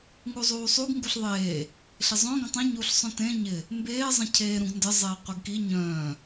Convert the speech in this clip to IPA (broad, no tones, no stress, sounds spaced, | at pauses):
ŋ u zˤ uː sˤ u ɡ ŋ ɡ u ɬ ðˤ eː | ɬ ɪ zˤ œ̃ ɡ ə̃ tˤ ĩ ɲ uː ɬ sˤ œ̃ t ẽ ɲ ɪ | m b eː zˤ ə̃ cʰ eː ɾ ũ ɡ n d ə zˤ eː qʷ ə ɡ k i ɲ œ̃ː